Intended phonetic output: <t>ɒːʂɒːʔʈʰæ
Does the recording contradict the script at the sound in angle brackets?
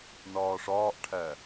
yes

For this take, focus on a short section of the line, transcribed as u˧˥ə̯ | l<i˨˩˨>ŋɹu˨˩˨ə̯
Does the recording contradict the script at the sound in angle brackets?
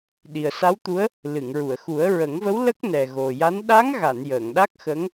yes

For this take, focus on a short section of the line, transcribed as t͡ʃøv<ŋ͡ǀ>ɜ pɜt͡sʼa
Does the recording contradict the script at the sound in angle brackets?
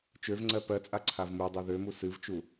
no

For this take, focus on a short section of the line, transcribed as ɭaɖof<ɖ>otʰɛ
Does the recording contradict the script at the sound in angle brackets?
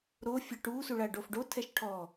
no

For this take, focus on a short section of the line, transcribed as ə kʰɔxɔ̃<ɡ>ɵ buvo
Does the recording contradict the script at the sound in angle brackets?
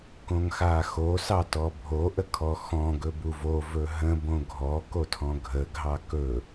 no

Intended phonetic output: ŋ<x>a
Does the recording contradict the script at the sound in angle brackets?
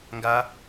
yes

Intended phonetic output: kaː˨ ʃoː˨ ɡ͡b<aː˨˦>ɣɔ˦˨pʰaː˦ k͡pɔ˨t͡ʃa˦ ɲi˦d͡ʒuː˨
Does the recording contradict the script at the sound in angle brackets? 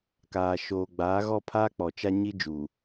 no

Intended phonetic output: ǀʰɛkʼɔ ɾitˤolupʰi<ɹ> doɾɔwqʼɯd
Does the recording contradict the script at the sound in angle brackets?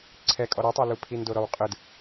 yes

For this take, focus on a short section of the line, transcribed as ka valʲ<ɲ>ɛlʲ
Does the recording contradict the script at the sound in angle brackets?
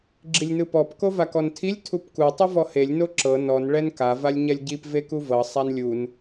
no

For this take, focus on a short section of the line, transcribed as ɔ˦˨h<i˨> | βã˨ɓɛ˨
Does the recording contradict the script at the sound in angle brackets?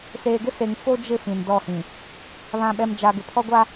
yes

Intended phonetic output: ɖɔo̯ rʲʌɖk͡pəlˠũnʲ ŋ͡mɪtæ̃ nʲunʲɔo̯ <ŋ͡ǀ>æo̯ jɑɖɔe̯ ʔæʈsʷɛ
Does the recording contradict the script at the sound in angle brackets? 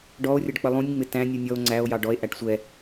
no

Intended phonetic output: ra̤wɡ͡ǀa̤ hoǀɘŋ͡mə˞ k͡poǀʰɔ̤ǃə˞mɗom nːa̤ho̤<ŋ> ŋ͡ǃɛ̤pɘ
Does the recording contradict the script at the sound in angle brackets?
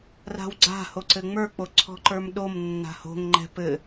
no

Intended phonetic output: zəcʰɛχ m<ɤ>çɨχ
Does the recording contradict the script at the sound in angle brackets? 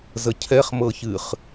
no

